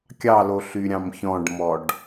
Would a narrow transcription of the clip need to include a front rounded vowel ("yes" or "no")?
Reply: yes